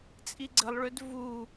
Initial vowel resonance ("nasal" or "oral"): oral